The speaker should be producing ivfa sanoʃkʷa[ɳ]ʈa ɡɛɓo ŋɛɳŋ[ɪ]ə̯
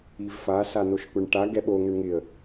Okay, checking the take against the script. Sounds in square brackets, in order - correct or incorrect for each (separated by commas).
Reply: correct, correct